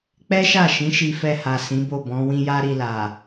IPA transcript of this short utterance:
k͡p ɛ˦ ʃ a˦˨ ʃ ĩ˨˦ ʃ i˧ f ɛ˧ h a˨ s ĩ˨˦ b o˦˨ b ɔ̃˨˦ w ĩ˦ j a˦ ɾ i˧ l a˨

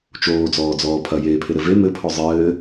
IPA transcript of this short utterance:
t͡ʃ oː d͡z ɔː d͡z ɔː pʰ ɐ j eː pʰ ɪ ɾ ɘ v e m ɘ pʰ ɔ zˤ ɘː

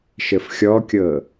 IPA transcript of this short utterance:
ʃ ə f xʲ ɔ kʲ ɤ

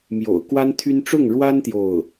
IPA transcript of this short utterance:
m j o̰˨˩ ʊ̯ k w a˥ n t̪ʰ y˥ n ʈ͡ʂ ʊ˥˩ ŋ ɻ w a˥ n t̪ j o˥˩ ʊ̯

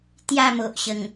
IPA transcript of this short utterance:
t̪ j a˥˧ m o˨ ʔ ɕ ə˨˩ ŋ

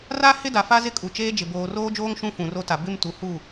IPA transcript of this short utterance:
r a˦ h ɪ˦ d a˨ f a˦ z ɪ˦ kʼ u˨ t͡ʃ eː˦ d͡ʒ ɪ˨ b oː˨ r oː˦ d͡ʒ oː˦ ŋ ʃ ũ˦ f ũ˨ r o˦ t a˨ b ɪ˦ m t u˨ h u˦˨

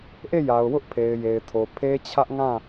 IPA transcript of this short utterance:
ʔ e˦˨ j a˨ ʊ̯ w ʊ˦ ʔ pʰ e˨ ɪ̯ j e˨ ɪ̯ tʰ o˨ pʰ e˦ t͡ɕʰ ä˦ ʔ ŋ ã˦˨

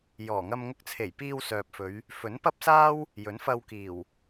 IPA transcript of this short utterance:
j ɔː˨˩ ŋ ɐ˧ m ŋ ʊ˧ k̚ t͡sʰ e˨˩ j p iː˧ w s œː˨ p̚ f ɵ˨˧ ɥ | f ɵ˨˥ n p ɐ˥ p̚ s aː˥ w | j ɵ˨˥ n f ɐ˧ w k iː˨˩ w

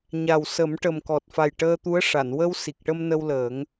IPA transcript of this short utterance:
ɲ a˨˩ w s ə˨˩˦ m ʈ ə˨˩ m k ɔ˨˩ t̚ f a˨˩ j ʈ əː˧ t̪ u˧˥ ə̯ ʂ a˨˩˨ n w ə˧ w s i˨˩ k̚ ʈ ə˧ m n ə˧ w l əː˨˩˦ ŋ

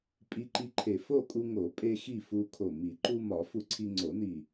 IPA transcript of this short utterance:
pʼ i˧ ǃ i˧ ǃʰ e˨˩ f o˥˨ kʼ u˧ ŋ o˨˩˦ pʼ e˧ x i˥˨ f u˧ kʰ o˨˩ m i˨˩˦ ǃ u˧ m ɒ˨˩˦ f u˧ ǀʰ i˧ ŋ͡ǀ o˨˩˦ n i˨˩

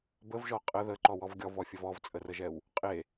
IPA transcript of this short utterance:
b ə v ʒ ɔ qʼ ə ð ə ǃ ɔ w ɔ v ɡʲ ɔ v ɔ fʲ ə v ɔ v t͡sʼ ə r ə ʒ ɛ w | qʼ e

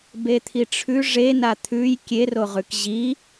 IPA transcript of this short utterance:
b e t̪ʰ i ʈ͡ʂʰ ʉ ʐ e n a t̪ʰ ʉ j kʲ e r o ʁ ʉ k ʑ i

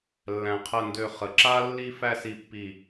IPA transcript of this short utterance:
lː æ̃˩˧ qʰ ə˧˩ n d ø˧˩ χ ə˩˧ ǁ a˥ lː i˥ f æ˥ s i˧ pː i˧˩

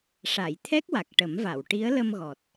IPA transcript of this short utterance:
ʂ a˨˩˨ j t̪ʰ ɛ˦˥ k̚ w a˨˩ k̚ ʈ ə˨˩˦ m v a˨˩˨ w ʈ i˧˥ ə̯ l ə˧ m ɣ ɔ˨˩ t̚

